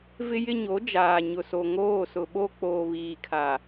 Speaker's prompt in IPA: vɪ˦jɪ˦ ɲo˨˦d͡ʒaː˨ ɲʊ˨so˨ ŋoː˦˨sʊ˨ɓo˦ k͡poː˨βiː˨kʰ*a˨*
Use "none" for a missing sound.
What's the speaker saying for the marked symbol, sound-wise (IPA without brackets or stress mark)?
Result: a˨